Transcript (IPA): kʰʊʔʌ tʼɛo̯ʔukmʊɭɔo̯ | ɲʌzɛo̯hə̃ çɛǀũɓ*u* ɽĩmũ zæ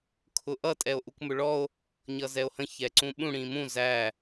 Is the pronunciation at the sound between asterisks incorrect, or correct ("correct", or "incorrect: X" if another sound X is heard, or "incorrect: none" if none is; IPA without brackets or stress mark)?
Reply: incorrect: ũ